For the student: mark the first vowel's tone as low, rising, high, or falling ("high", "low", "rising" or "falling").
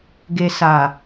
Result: low